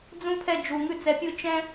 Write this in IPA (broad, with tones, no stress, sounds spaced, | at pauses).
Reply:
d͡z ũ˥ pʰ ɛ˥˧ d͡ʒ u˧ ŋ ʉ˥˧ t͡s ɛ˧ pʲ ɯ˥˧ t͡ʃ ɛ̃˥